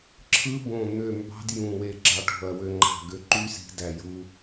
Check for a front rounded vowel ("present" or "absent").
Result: present